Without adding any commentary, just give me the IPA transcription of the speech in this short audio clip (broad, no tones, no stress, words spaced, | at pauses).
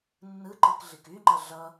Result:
nːɯǃɯkɮik yŋ͡ǃɐ ɮʌ